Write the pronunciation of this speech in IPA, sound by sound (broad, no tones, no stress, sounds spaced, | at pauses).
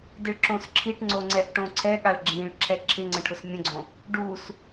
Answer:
d ɪ ɭ ǁ õ s ǁʰ i ʈ ŋ͡ǀ o ŋ͡ǀ ɛ ʔ ʈ õ ǀʰ ɛ ɠ a ɭ ɡ͡ǁ ĩ ɭ ǁʰ ɛ ǁʰ ɪ ŋ͡ǀ ə̃ ʈʰ ʊ s mʲ ə̃ ɡ͡ǀ õ | ɖ u s